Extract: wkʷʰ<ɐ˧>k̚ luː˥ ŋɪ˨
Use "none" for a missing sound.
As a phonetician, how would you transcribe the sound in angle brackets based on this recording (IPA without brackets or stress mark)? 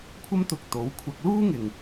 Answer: ɐ˧